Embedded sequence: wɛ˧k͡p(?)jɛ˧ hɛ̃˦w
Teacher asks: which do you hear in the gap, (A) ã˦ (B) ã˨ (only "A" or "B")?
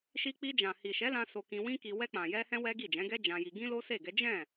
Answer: B